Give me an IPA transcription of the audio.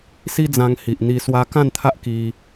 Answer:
s i˦ d͡z ã˧ ŋ h i˨ ʔ n̪ i˧ s w a˧ k ã˥˧ n t̪ʰ a˦ ʔ k i˧

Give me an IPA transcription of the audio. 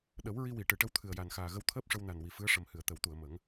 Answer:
ɗ ə˨˩˦ w ɹ i˧ w i˨˩˨ ʈ ɨ˨˩˨ ʈ ə˧˥ w t̪ʰ ɨ˨˩ ə̯ j a˨˩ n x aː˨˩ ɣ ə˧ w t̪ʰ əː˦˥ p̚ ʂ ə˧ w n a˨˩ n w i˨˩ f ɨ˧˥ ə̯ ʂ ə˨˩ m h ɨ˨˩˨ ə̯ t̪ ə˨˩˦ w t̪ u˨˩˨ ə̯ m ə˨˩˦ ŋ

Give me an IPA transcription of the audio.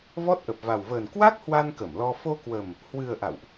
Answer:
v ɔ˦˥ t̚ ʔ ə˨˩ p̚ v a˨˩ w v əː˨˩ n k w a˦˥ k̚ h w a˧ n k ə˧˩ m l ɔ˧ f o˧ k w ə˨˩ m | h w ɨ˨˩ ə̯ ʔ a̰˧˨ w ʔ

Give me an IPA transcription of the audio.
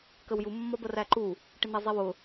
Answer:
k ə w j u mː ɒ b ɜ r æ ǃ u | ʈ ɪ n̪ ɛ zˤ i w ʊ

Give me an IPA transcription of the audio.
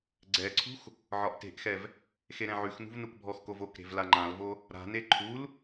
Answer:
ɡ͡ǀ ɛ ǀʰ ṳ x | ʕ ɒ ʔ t e̤ ʔ x ɛ v | x e ɾ ɛ̃ ʕ ʉ x n ṳ v n u k bʱ ɔ x k o v o k ɾ e̤ v l a ŋ͡ǃ ã l v o | ɾ a̤ n e ǃʰ u l

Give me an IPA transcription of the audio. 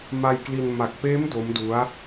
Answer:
m a˧ j k l i˧ n m a˨˩ k̚ p eː˦˥ m d o˦˥ m d u˦˥ a̯

